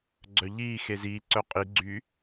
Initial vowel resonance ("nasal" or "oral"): oral